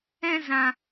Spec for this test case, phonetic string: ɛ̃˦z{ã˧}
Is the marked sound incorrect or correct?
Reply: correct